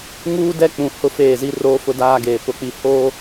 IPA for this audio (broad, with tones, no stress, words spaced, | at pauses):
ŋuː˦dɛ˦k͡pũ˨ hʊ˦feː˦˨zi˦ roː˦fʊ˦daː˦ ɡeː˨ pʊ˨k͡pi˨ hoː˦